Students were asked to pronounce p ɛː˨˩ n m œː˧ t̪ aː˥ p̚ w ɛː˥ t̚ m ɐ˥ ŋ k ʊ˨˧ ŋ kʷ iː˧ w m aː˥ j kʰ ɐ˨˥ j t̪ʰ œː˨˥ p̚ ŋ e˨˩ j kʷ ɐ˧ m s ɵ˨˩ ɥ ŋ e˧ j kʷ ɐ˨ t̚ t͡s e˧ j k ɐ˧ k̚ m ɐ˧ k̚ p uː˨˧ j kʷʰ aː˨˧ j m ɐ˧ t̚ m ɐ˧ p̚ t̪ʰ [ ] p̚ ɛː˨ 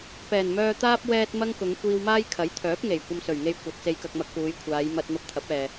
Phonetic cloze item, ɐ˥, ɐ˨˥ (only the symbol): ɐ˨˥